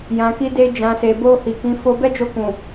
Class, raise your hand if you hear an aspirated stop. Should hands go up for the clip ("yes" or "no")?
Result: no